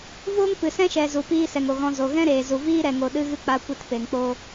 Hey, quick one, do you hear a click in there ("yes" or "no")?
no